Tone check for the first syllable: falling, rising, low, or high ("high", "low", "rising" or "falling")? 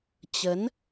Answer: rising